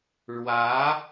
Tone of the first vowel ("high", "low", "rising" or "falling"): rising